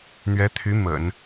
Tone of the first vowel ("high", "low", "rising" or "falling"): rising